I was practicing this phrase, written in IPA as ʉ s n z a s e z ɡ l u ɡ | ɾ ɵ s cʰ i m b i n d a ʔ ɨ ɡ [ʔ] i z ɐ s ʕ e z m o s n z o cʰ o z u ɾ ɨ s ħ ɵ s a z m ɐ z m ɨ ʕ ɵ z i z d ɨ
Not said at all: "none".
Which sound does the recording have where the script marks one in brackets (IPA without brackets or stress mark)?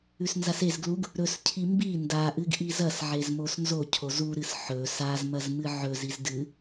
ʔ